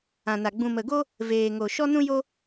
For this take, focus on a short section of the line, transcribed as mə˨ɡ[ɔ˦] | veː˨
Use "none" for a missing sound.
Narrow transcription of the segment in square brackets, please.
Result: o˦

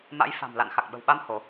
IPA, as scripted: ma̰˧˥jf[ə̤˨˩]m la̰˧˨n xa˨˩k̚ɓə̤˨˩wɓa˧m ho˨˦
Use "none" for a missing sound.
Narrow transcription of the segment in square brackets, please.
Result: a̤˨˩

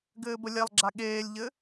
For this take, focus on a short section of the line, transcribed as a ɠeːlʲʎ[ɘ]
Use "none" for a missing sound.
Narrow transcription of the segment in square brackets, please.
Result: ɘ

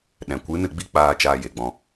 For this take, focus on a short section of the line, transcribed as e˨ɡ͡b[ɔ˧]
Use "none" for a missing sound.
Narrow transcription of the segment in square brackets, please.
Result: ɔ̃˧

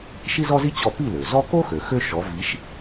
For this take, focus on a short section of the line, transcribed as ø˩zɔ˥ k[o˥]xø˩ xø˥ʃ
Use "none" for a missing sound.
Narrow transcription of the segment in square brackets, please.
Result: o˥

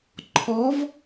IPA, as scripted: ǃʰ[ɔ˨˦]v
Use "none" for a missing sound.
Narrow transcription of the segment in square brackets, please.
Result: ɔ˨˦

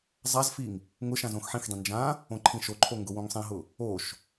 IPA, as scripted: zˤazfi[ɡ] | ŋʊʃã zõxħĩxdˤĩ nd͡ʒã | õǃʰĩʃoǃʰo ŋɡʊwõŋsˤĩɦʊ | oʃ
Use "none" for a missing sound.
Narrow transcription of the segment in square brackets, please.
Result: ŋ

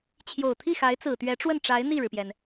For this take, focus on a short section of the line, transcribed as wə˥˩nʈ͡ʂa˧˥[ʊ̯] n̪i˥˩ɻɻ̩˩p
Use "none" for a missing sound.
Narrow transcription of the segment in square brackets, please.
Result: ɪ̯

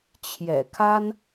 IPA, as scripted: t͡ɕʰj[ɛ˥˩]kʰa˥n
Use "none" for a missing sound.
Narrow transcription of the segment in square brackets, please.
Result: ɛ̰˨˩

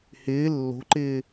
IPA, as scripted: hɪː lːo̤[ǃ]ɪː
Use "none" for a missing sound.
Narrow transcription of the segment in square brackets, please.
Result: ǃ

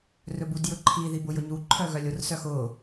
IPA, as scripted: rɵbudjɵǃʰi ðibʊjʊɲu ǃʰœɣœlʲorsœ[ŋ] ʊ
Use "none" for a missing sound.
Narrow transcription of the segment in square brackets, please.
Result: x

